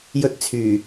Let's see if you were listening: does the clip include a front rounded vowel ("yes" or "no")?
yes